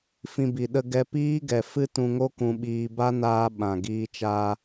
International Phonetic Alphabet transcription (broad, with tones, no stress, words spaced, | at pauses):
fĩ˧bi˨ ɗə˧ɡɛ˧ piː˦ɡɛ˨ fɨ˦tũ˧ŋo˦ kũ˧ɓiː˧ ba˦naː˧ ɓã˨ ɡiː˧t͡ʃaː˧